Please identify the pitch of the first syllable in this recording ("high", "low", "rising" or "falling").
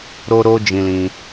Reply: high